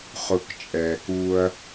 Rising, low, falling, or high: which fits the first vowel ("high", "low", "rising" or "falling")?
low